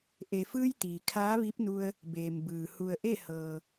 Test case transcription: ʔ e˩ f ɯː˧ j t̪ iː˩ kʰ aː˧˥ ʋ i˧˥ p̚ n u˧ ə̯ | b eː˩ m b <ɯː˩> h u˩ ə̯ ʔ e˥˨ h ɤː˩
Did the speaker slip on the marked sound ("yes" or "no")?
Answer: no